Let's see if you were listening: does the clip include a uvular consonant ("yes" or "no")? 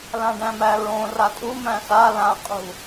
yes